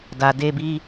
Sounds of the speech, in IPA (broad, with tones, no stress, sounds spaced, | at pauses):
d a˨ d e˧ b i˧